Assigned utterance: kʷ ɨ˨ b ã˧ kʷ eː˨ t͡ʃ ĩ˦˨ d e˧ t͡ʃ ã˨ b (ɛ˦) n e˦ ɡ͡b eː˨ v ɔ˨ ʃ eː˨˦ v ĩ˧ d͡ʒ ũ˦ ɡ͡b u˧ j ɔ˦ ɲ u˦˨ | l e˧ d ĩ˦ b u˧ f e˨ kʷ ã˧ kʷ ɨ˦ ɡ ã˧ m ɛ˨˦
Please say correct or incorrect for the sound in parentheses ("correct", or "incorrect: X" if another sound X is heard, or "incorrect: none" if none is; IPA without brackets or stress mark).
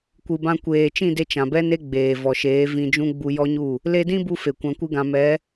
correct